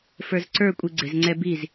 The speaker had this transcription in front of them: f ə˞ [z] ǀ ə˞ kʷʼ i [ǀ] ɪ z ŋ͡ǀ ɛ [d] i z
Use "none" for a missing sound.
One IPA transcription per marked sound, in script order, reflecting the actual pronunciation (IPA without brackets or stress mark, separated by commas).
z, ɡ͡ǀ, b